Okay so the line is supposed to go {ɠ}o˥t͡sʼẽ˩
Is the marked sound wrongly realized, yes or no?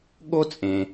no